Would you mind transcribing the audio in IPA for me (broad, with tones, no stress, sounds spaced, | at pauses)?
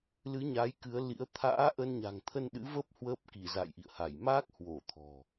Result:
l ɨ˨˦ ɲ a˨˦ j k ɨ˨˦ ə̯ l ḭ˧˥ ə̯ t̪ʰ a̰ː˧˥ ʔ ə˧ n ɲ a̤˨˩ ŋ t̪ʰ ə˧ n ɗ ɨ̰˧˥ v ə˦˥ p̚ h w əː˦˥ p̚ k i˧˩ z a̰˧˨ j ʔ ḭ˧˨ ə̯ h a˧˩ j m aː˦˥ k̚ h w o˧˩ t̪ʰ ɔ̤˨˩